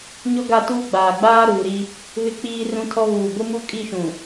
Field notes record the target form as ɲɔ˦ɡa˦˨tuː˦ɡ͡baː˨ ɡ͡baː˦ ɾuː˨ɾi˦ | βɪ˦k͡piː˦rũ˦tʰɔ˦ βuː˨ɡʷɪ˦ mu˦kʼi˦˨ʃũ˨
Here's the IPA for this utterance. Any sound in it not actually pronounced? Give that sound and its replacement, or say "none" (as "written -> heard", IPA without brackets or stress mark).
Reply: none